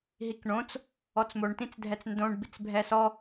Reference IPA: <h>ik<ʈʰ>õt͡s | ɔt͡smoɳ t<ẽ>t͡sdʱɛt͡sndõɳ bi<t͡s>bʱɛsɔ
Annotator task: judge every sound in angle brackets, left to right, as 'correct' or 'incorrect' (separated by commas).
incorrect, incorrect, incorrect, correct